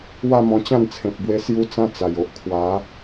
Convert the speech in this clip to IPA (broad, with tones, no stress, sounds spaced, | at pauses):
w a˥˧ m ɔ̃˧ t͡ɕ ã˥˧ n t͡sʰ ẽ˨ p̚ b w e˧ s j u˧ t͡s ã˧ t͡s a˨˩ j o˨ ʔ kʰ w a˨˦